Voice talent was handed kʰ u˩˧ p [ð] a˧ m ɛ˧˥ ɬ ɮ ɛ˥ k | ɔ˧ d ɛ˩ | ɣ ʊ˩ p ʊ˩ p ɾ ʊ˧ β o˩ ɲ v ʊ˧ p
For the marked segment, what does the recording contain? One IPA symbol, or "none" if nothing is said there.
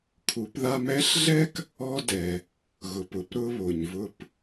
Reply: ð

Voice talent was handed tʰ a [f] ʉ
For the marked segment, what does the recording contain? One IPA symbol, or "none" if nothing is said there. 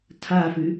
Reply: f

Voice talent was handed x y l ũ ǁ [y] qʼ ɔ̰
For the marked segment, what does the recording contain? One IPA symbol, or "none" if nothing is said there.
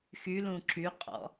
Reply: y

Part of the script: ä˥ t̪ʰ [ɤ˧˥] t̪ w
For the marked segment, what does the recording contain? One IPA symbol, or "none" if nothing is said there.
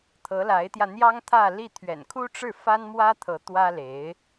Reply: ɤ˧˥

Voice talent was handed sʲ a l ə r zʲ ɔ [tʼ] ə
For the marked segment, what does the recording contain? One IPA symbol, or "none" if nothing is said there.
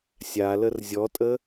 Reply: tʼ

